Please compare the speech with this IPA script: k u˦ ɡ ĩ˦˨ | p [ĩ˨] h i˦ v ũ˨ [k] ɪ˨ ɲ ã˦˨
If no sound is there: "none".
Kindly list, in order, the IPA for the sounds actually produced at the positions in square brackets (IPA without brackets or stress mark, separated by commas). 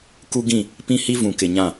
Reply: ĩ˦, k